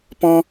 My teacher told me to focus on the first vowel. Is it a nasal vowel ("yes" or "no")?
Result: yes